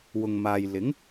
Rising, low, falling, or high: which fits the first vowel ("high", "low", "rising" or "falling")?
low